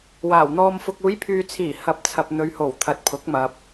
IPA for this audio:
waː˨˩wn̪ɔː˧mfʊ˧k̚ uː˨˧jpʰyː˨t͡sʰiː˨˩ hɐ˨˥p̚t͡sʰɐ˨p̚ n̪ɵ˨˧ɥho˨˩w t̪ʰɐ˨t̚pʰʊ˨˥k̚ mɐ˨p̚

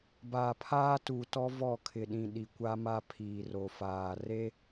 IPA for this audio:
baː˨pʰaː˦tu˨tɔ˦ vɔ˦˨ kʰɪ˨ɗĩ˨ ɗi˨kʷa˦ma˦pʰiː˨ ro˨faː˨ re˦

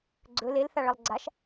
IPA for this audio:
ɡ͡ǀɵ lelθaɭɐlˠ ɡ͡ǀaʃ

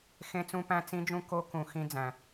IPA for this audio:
xẽ˦˥t͡sũ˦˥pæ̃˦˥ t͡sĩ˦˥d͡ʒũ˦˥ko˦˥kũ˧ xĩ˦˥d͡zæ̃˧

